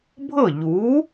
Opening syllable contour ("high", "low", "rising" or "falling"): falling